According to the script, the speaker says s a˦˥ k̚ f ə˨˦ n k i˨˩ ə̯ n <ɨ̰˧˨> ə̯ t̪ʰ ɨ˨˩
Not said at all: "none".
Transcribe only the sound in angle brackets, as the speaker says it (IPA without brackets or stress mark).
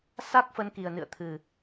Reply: ɨ̰˧˨